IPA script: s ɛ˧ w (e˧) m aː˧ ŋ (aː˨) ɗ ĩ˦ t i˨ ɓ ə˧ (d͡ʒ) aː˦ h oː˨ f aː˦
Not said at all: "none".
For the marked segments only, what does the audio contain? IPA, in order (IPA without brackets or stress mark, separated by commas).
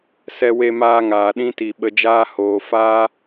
e˧, aː˨, d͡ʒ